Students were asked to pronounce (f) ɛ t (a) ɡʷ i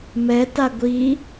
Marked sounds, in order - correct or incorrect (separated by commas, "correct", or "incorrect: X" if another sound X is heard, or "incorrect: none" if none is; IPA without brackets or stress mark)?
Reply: incorrect: m, correct